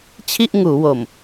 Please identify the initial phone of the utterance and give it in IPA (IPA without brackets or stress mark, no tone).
t͡ɕʰ